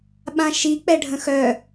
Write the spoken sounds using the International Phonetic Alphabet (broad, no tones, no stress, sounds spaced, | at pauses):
ɓ ã ʃ i k͡p ɛ ɖʱ ə̃ x œ